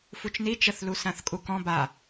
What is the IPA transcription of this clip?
f u t͡ʃ n i t͡ʃ ə θ l u s ã θ kʼ u k ɔ̃ b a

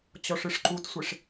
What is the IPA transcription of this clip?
t͡ɕ ɔ ʂ ɨ ʂ ǃ u t sʷ e ʂ

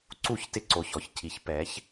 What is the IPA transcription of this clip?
ǀ u˧˩˧ ç t ɪ˧ ǀ o˩˧˩ ç ɔ˥˩ ç cʰ i˩˧ ç p ɛ˩˧ ç

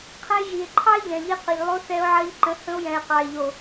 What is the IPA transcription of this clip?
qʰ ə̃˧ e̯ ʒ i˨ e̯ ǃʰ ɑ˦ e̯ ʎ ɛ̃˨ ʎ i˧ q ə˨ ʎ lˠ o˧ θ ɛ˧ o̯ ʕ ɜ˧ ʎ ǃ ə̃˨˦ h ə̃˧ o̯ j ɛ̃˨ e̯ q ɑ˨ e̯ ʎ o˨

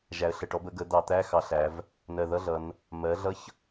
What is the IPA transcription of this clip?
ʒ æ˩˧ ə̯ ɬ ə˨˩ ʈ ɔ˩˥ b ə˩˥ ɡ ə˩˥ d̪ ɑ˧˩˧ t̪ æ˧˥˧ x ɑ˧˩˧ ɬ æ˩˧ v | n ɜ˨˩ ð ʌ˧˥˧ ɮ ʌ˩˧ n | m ɜ˩˥ ɮ ʌ˧˥˧ ç

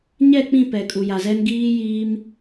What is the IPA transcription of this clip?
ɲ ɛ˦˨ k͡p ĩ˦˨ p ɛ˨ kʼ u˨ j a˨ z ɛ˦ n ɡ iː˦ j iː˦ m

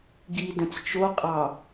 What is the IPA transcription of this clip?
ɡ i d ə̃ t͡s t͡ʃ o qʼ ɑ

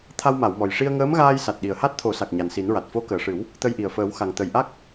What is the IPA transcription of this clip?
t̪ʰ a˧ w m a˨˩˨ w m ɔ˨˩ j ʂ i˧ ə̯ ŋ əː˧˥ m ɣ aː˧ j s a˨˩ t̚ ɗ i˨˩ ə̯ h a˦˥ t̚ t̪ʰ o˨˩˦ s a˨˩ k̚ ɲ a˨˩ n s i˨˩˦ n ɹ a˨˩ t̚ f o˧˥ k əː˨˩ ʂ ɨ˨˩˦ w | t̪ ə˧ j ʔ i˨˩ ə̯ f əː˨˩˦ w x a˨˩ ŋ t̪ ə˨˩ j ʔ a˦˥ k̚

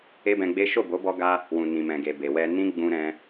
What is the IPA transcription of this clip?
e˦ b ɛ̃˧ ɡ͡b e˦ ʃ o˦˨ b o˨˦ b ɔ˧ ɡ a˧ | w ũ˨ n ĩ˨ m ɛ̃˨ ɡ e˨ b e˨ w ɛ˧ n ĩ˦ ɡ͡b ũ˧ ɾ ɛ̃˧

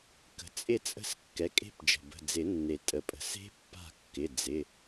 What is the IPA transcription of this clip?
k ə̤˩ t͡sʼ ɪ˦˨ t͡sʼ ə̤˦˨ s kː ɛ˩˥ kʼ e̤˦˨ p d͡ʒ ə̤˩ b ə̤˩˧˩ d͡z ɪ˨˩˦ nː e˩ tʼ ə˩ pʼ ə̤˩ s e̤˦˥ pː a̤˦˨ kː ɪ˩˧˩ d͡z ɪ˩˧˩

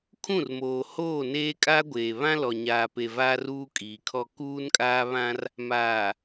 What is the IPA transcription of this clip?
kʰ ũ˦˨ r m oː˨ h oː˦˨ n eː˦ kʼ aː˦ ɡʷ eː˨ β ã˦ l ɔ˨ ɲ aː˨ p e˨ v aː˦ r uː˦ kʼ iː˨ kʰ ɔ˦ k uː˦ n kʼ aː˦ β ã˦ r | m aː˨

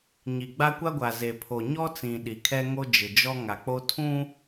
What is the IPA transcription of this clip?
ɲ i˨ ɡ͡b a˦ kʷ a˦ ɡʷ a˨ z e˨ pʰ o˨ ɲ ɔ˦ t͡s ĩ˨ ɗ i˨ kʰ ɛ˦ ŋ o˦ d͡ʒ ɪ˨ d͡ʒ ɔ˦ ŋ a˨ k͡p o˦ tʰ ũ˦

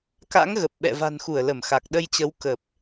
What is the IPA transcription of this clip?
k a̰˧˥ ŋ ɣ ə˨˩ p̚ ɓ ɛ̰˧˨ v a̤˨˩ n x u˧˩ ə̯ l ə˧˩ m x a˨˩ k̚ ɗ ə˧ j t͡ɕ ə˨˦ w k ə˨˩ p̚

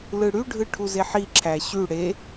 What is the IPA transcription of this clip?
l ɯ ɽ y ɖʱ ɯ ʈʰ u z e ħ i ǁʰ æ ɕ y ɽ e

